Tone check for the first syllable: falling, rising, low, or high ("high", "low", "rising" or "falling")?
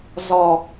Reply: low